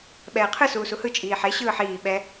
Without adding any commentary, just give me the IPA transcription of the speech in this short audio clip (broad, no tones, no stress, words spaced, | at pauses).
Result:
ɓɛːqʰɯ suːsuhɯ t͡ʃʼiːħe ɕɯːħiː ɓɛ